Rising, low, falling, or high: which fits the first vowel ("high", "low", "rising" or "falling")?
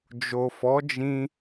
low